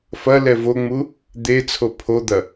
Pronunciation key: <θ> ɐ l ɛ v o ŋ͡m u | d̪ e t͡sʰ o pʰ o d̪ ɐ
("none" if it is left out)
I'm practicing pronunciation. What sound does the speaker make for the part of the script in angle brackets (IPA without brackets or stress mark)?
f